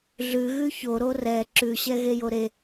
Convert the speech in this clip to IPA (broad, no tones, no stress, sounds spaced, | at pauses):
ɮ ʉ ɣ ʉ ç o ɾ o r ɛ ǁ ʉ ɕ ɛ ɣ e j o ɾ e